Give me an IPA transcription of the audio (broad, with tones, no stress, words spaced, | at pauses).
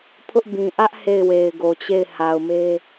pʰʊ˦ʔbĩ˨ ʔä˦ʔ he˦˨ɪ̯we˨ɪ̯ɡo˨t͡ɕe˦˨ɪ̯ ha˨ʊ̯me˦